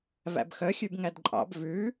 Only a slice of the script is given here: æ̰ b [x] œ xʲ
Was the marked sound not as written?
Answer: no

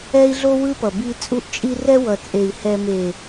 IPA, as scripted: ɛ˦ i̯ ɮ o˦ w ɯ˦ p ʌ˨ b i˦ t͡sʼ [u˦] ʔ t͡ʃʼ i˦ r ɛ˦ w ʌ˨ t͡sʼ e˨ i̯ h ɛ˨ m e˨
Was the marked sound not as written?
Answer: no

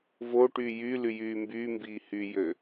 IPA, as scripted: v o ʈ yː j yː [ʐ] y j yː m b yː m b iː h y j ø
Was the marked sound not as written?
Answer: yes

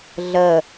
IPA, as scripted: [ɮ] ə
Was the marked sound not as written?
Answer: no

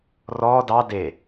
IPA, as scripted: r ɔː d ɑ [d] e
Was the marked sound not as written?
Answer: no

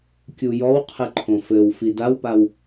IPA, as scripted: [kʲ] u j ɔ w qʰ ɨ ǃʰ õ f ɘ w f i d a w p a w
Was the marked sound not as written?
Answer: no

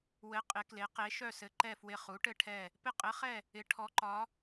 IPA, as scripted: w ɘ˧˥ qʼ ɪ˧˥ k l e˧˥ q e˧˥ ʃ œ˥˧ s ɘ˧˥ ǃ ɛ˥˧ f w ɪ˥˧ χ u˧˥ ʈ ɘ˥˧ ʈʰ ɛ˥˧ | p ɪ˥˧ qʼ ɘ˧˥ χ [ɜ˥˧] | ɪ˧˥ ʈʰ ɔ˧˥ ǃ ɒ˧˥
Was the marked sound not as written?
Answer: yes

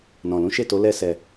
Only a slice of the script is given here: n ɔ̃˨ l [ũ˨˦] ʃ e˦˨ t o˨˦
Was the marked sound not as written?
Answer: no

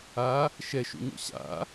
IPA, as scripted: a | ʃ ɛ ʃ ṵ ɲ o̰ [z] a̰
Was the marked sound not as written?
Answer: yes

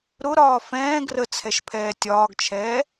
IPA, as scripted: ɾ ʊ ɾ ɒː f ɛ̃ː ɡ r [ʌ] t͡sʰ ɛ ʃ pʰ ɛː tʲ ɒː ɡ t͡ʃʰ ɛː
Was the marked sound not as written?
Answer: yes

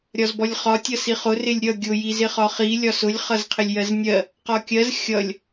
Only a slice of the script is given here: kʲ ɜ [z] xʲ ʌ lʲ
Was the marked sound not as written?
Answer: no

